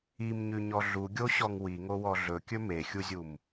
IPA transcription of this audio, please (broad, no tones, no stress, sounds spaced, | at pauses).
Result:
i m ɲ ʉ ɲ ɔ ɮ u ɡʲ o ɕ ɔ ŋ w i ŋ o w ɔ ɮ ɵ kʲ ɵ m e xʲ u zʲ u m